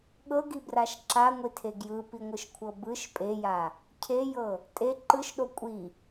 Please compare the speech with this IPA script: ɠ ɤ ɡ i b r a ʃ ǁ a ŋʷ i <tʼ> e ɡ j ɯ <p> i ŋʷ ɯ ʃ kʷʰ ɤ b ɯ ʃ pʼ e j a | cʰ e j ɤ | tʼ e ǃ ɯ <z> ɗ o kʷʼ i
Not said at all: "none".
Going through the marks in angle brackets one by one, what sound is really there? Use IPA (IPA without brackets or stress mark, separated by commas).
tʰ, p, ʃ